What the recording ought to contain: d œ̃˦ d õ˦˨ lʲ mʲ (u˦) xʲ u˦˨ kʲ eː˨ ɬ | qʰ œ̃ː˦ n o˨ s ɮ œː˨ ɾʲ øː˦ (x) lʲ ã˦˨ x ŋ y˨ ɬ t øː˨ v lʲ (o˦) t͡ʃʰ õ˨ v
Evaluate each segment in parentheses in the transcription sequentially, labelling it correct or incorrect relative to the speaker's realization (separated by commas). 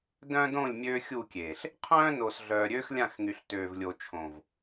incorrect, correct, incorrect